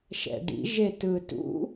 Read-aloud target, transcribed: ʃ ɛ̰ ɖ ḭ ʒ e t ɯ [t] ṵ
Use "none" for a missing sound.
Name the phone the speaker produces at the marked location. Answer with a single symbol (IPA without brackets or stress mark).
t